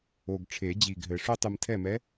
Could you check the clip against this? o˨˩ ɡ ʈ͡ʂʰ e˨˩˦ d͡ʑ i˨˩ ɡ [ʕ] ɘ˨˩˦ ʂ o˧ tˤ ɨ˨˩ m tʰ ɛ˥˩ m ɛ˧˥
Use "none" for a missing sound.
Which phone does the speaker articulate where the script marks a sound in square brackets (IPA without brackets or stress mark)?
ɦ